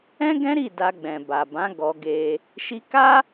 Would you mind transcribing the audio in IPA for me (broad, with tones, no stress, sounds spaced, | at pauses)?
ɛ̃˦ ɡ ɛ̃˦ ɾ i˦˨ d a˧ ɡ͡b ɛ̃˨ b a˨ b ã˨˦ ɡ ɔ˧ ɡ e˧ | ʃ i˧ k a˦